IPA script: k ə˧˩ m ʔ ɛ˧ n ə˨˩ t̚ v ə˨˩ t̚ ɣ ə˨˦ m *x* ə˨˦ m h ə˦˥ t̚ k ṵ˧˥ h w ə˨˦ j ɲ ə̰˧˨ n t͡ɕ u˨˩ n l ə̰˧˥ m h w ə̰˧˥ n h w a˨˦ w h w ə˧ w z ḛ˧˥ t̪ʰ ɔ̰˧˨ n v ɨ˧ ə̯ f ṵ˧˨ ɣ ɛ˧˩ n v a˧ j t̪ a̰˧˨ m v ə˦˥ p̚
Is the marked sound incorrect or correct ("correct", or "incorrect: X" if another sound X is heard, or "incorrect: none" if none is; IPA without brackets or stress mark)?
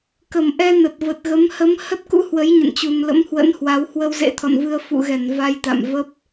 incorrect: h